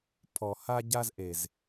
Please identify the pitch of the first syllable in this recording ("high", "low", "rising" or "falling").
low